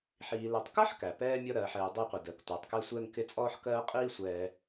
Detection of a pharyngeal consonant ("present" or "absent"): present